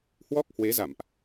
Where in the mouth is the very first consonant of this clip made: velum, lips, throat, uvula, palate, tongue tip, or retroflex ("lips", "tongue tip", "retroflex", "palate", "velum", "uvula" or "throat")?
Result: throat